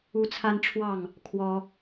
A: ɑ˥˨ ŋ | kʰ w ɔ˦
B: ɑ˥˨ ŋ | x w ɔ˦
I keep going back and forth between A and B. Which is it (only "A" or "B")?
A